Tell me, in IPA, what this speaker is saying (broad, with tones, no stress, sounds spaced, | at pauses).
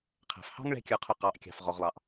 qʰ æ̤˩ f h ɑ̤˥ ŋ ɭ ɛ̤˥ kʲ ə˞˧ qʰ ʊ˧ q ɑ˩˧ ʔ kʲ ɑ̤˩ f ʁ ɔ˩ ʁ lˠ ɑ˩ ʔ